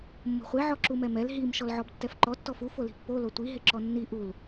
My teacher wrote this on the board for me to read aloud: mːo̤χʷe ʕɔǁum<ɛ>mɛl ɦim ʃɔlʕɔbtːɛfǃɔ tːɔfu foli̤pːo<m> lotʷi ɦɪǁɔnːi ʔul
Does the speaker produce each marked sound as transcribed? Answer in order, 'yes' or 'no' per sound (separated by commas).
yes, no